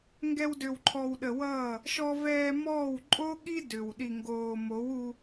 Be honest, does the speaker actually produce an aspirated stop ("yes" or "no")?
yes